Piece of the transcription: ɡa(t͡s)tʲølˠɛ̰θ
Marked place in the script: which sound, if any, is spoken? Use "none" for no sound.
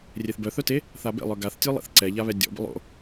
θ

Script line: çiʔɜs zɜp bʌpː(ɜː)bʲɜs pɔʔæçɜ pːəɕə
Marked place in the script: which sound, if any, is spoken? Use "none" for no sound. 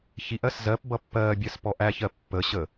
ɜː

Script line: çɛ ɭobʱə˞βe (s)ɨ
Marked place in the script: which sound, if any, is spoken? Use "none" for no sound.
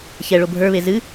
z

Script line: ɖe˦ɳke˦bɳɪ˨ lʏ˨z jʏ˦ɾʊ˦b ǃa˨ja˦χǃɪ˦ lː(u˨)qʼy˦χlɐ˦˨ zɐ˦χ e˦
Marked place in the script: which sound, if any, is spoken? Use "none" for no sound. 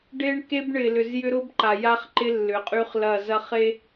ʏ˨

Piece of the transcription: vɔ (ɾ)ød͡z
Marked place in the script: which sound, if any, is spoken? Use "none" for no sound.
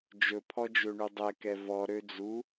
ɾ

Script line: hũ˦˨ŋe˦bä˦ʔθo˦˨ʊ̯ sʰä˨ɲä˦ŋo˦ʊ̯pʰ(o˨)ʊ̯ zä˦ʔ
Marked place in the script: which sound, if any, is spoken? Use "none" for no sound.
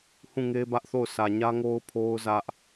o˦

